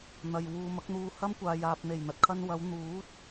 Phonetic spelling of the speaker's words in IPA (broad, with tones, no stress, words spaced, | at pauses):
n̪ɐ˨j wuː˨mɐ˨˥k̚n̪uː˧ hɐ˥mkʷaː˨ jaː˨p̚n̪e˨˩jn̪ɐ˨t̚ kʰɐ˧n wɐ˨˧w n̪uː˨˥t̚